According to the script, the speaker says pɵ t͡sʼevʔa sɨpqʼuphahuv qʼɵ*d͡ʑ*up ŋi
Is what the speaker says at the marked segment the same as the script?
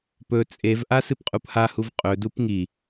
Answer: no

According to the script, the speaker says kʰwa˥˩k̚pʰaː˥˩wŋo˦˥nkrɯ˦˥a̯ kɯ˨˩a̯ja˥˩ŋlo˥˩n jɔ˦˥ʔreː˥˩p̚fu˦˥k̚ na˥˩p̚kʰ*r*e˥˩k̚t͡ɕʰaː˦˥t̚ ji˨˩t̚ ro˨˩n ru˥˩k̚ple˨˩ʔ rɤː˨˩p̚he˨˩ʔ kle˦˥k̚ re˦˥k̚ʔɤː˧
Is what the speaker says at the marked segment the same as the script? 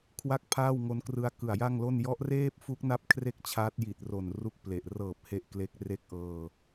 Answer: yes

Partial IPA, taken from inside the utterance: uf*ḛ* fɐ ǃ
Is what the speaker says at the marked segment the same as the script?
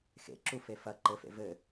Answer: no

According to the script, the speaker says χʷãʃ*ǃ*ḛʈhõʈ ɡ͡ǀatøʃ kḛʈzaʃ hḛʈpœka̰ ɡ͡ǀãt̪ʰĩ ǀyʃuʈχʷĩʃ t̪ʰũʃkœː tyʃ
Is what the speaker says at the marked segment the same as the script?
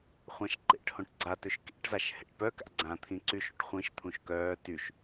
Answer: yes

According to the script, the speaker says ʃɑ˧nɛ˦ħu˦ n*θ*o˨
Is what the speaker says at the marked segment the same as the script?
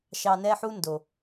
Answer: no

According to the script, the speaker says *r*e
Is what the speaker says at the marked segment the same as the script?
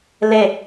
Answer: no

